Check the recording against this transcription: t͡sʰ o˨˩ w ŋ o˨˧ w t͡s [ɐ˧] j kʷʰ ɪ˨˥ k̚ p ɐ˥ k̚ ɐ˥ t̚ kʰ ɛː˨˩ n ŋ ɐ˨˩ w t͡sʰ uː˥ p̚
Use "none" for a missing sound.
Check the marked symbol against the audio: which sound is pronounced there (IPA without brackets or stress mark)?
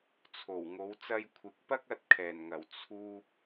ɐ˧